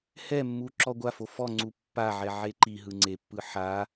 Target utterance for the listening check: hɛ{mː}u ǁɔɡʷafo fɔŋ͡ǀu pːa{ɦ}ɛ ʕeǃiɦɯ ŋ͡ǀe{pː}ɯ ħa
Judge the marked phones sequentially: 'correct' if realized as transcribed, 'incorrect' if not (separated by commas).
correct, incorrect, correct